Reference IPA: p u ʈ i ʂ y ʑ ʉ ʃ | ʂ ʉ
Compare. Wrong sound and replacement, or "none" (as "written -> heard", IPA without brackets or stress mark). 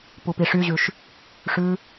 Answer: ʈ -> p